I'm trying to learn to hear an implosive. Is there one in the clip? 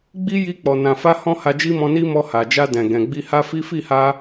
no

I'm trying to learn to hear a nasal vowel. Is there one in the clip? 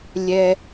no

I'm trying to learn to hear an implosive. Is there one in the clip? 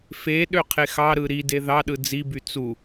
yes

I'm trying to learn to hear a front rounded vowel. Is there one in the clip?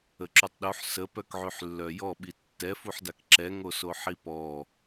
yes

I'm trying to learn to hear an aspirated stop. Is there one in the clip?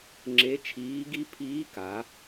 yes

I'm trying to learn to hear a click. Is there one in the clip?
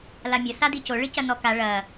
no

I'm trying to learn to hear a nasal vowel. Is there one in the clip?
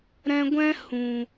yes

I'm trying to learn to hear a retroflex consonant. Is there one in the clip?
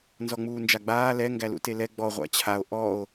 no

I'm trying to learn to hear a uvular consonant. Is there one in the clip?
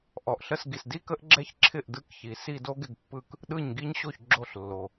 no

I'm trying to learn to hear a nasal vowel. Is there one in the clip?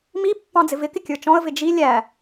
yes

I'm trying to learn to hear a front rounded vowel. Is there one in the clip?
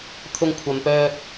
yes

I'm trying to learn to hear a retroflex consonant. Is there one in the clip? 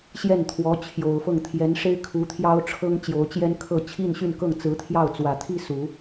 yes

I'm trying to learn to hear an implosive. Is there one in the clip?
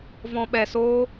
yes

